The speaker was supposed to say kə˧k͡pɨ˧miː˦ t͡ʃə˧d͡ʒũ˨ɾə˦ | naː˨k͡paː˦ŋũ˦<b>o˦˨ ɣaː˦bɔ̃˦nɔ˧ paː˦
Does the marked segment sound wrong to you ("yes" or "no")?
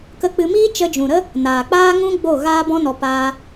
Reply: yes